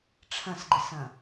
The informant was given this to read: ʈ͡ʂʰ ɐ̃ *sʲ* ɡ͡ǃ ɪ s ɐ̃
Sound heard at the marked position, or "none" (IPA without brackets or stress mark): s